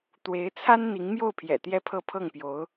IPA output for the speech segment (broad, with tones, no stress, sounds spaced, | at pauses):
t̪ w e˧˥ ɪ̯ t͡sʰ a˥ n n̪ i˧˥ ŋ m j o˥˩ ʊ̯ pʰ j ɛ̰˨˩ t̪ j ɛ˥˧ pʰ ɤ˥˧ pʰ ɤ˥˩ ŋ p j o˧˥ ʊ̯